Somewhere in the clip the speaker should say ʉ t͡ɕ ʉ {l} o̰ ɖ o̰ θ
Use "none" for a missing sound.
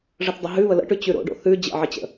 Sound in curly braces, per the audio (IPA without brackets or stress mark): ɾ